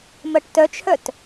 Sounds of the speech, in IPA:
m ɜ ʈ t œ t͡ʃʰ œ t

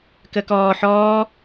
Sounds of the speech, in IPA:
k ə k ɔː ħ ɔː

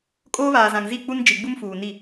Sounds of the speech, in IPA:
kʼ oː˦ β aː˨ z ã˨ ŋ z i˦˨ k͡p u˦ n d͡ʒ i˨ ɡ͡b u˦ m f uː˨ n i˦˨

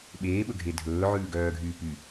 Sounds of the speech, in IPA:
ɓ eː ɓ ɵ ɡʱ e dʱ ɵː ʕ ʉː ɡ œː ɡʱ yː p y

